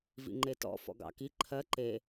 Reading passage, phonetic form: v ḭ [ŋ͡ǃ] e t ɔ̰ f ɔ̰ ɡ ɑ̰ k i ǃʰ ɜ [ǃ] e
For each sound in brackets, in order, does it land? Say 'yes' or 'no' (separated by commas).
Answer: yes, yes